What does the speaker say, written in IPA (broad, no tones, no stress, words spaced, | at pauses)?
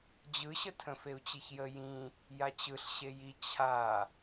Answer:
d͡ʑɯɕətʰə̃ feu̯t͡ɕiçjə jĩ | jat͡ɕɯɬ ɕeji t͡ɕʰa